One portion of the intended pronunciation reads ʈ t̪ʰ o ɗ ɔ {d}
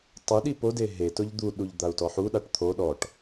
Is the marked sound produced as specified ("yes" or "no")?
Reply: no